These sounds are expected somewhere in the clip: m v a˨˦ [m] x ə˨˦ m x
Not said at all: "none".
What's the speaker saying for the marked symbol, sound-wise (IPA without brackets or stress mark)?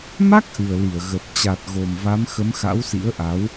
m